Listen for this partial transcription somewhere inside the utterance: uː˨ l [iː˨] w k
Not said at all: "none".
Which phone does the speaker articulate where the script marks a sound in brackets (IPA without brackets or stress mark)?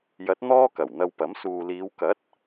iː˨˧